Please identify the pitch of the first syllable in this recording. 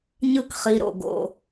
falling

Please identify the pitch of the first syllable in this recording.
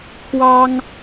high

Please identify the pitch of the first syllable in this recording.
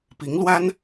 rising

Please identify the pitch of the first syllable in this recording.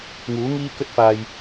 rising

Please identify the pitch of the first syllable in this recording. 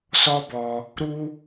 high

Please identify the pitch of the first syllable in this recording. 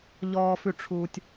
low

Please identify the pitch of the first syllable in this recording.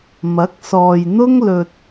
rising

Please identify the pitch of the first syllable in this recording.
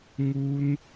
high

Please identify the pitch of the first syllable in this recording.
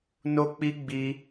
high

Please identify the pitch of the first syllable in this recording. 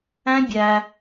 high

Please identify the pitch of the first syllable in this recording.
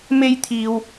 high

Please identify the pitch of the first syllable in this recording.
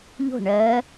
falling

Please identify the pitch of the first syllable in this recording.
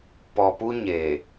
low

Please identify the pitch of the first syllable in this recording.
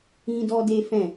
high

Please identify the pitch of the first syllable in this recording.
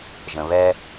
low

